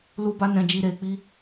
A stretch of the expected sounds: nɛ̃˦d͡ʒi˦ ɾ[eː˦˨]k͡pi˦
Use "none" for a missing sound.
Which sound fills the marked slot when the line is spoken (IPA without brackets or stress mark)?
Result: eː˧